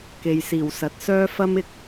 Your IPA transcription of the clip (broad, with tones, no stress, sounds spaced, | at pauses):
k e˨ j s iː˨˩ w s ɐ˨ t̚ s œː˥ f ɐ˥ m ɪ˨ k̚